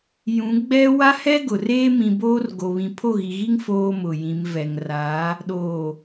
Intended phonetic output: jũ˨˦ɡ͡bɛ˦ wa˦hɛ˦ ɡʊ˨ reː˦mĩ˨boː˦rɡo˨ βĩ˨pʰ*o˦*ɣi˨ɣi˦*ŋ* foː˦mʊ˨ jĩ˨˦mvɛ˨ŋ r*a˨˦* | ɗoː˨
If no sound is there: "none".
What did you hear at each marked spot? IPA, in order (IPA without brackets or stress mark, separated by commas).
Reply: o˦˨, ŋ, a˨˦